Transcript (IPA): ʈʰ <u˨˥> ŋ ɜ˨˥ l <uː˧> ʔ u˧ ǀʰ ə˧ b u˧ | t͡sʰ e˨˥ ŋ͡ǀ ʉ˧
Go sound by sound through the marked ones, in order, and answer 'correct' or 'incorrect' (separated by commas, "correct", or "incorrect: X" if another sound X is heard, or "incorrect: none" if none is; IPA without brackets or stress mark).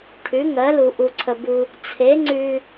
incorrect: ʉ˨˥, incorrect: u˧